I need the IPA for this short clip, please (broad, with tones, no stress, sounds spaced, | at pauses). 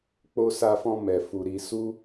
k͡p o˧ s a˧ f ɔ̃˧ m ɛ˨ f u˨ ɾ i˧ s u˦